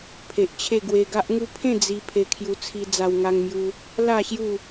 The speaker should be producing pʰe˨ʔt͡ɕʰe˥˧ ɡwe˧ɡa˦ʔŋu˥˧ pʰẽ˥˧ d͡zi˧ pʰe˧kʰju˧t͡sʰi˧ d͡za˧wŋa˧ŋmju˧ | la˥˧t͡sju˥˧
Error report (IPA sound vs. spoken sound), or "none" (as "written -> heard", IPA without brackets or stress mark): t͡s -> ɕ